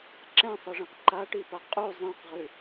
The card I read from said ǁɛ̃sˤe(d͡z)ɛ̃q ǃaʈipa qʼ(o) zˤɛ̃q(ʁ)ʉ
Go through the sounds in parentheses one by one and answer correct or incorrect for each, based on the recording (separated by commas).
incorrect, incorrect, correct